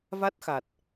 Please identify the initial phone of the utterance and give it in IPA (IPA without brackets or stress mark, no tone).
v